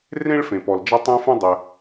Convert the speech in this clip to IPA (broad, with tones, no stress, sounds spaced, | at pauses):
r ẽ˥ ɭ f ẽ˩ p ɔ˩ l d͡ʒ ɐ˥ tˤ ẽ˥ f ũ˥ dˤ ɘ˩